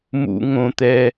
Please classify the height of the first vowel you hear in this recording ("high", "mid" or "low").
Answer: high